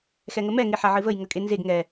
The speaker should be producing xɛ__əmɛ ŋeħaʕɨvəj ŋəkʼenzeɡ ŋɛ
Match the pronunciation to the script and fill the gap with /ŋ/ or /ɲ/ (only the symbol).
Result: ŋ